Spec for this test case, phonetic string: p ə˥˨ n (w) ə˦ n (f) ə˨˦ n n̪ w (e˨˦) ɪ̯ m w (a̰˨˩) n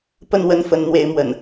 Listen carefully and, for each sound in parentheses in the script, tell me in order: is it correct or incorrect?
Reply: correct, correct, correct, incorrect

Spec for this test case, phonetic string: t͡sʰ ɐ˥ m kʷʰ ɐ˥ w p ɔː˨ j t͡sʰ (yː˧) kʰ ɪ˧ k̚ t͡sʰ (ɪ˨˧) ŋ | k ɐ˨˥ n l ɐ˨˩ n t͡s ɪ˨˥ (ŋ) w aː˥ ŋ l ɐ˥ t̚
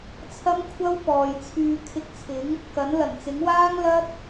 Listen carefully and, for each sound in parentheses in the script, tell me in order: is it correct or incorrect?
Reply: correct, incorrect, correct

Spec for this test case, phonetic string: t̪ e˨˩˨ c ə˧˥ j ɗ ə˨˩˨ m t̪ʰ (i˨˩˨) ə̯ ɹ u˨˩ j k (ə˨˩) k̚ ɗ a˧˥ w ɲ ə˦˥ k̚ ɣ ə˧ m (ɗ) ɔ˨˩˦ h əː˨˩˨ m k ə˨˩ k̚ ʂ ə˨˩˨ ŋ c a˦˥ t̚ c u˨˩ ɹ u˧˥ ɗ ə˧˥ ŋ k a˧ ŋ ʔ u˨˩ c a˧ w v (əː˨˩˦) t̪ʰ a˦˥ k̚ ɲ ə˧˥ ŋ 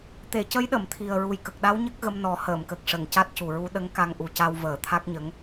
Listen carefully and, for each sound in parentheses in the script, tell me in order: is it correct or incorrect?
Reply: incorrect, correct, incorrect, correct

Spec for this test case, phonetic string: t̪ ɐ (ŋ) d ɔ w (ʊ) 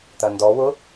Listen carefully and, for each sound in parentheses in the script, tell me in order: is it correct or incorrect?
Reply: incorrect, correct

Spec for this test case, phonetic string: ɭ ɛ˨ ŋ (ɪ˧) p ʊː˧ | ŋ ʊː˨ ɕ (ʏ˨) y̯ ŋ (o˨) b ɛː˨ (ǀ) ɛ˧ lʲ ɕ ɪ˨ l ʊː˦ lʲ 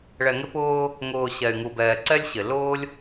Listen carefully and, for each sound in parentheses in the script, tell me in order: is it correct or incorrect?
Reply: correct, incorrect, incorrect, correct

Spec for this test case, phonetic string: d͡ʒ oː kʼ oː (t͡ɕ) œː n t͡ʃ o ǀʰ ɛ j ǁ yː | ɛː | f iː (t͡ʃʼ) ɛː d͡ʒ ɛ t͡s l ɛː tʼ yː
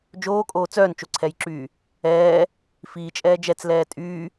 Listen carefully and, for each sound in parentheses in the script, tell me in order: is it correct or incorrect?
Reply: incorrect, correct

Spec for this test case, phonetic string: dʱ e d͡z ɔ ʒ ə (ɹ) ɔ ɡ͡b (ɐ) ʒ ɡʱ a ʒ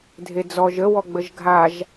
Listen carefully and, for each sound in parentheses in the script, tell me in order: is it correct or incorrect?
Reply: incorrect, incorrect

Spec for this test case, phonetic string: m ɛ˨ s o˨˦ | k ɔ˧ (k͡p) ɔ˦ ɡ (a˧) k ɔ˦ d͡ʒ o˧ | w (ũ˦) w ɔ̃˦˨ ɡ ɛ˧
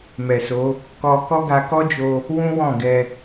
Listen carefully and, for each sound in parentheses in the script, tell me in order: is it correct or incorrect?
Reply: incorrect, correct, correct

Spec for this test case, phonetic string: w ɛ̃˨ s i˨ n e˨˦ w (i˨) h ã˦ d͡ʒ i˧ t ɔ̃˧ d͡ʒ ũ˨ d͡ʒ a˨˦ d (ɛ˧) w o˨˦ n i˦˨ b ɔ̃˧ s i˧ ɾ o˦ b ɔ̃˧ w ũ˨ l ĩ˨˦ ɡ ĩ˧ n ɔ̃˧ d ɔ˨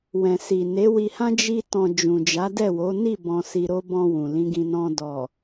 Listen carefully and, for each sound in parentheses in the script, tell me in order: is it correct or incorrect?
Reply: incorrect, incorrect

